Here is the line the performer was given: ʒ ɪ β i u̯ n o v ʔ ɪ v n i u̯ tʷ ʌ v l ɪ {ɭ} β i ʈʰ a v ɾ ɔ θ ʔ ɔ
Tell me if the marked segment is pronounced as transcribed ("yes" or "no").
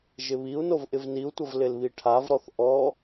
no